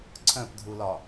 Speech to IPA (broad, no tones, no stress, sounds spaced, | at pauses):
ǀʰ œ̃ p dʱ u l ɒ